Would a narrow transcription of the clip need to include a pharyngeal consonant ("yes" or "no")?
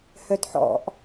yes